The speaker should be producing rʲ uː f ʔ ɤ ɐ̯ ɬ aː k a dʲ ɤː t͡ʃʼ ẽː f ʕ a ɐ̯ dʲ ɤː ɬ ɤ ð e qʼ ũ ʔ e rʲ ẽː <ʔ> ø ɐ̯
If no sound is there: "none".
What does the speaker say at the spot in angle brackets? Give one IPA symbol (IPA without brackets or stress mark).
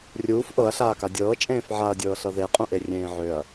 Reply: ʕ